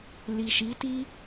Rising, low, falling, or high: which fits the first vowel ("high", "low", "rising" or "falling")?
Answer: low